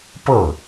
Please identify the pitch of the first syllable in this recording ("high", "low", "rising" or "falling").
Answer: falling